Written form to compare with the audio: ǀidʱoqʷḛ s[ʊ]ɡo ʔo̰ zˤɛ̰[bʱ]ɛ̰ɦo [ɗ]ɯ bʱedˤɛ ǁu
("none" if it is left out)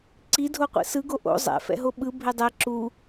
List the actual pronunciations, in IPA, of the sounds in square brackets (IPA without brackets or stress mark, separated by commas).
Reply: ɯ, f, ɓ